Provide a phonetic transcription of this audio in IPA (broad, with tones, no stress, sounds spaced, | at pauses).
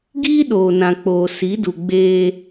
ɡ iː˦ ɗ oː˨ n ã˨ k͡p oː˨ s i˨˦ d u˨ ɡ͡b eː˦